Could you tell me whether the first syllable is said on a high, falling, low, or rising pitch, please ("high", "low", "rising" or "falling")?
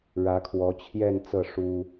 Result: rising